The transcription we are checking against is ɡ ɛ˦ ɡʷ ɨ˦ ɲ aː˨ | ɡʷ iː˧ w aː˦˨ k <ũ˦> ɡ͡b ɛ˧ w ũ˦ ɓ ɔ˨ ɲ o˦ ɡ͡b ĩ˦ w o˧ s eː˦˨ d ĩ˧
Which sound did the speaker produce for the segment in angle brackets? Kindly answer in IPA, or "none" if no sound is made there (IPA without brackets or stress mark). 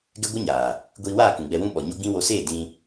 ũ˨